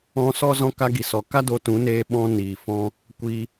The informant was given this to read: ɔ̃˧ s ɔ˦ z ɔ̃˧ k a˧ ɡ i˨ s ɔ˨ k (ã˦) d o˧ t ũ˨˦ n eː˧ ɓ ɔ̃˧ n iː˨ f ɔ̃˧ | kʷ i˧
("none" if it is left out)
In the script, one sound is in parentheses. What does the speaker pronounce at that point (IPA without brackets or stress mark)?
a˦